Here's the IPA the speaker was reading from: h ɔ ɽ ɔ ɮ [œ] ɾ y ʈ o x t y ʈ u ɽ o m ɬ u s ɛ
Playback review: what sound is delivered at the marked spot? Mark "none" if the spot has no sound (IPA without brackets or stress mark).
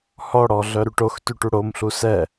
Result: œ